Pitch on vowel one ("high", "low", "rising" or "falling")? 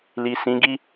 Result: low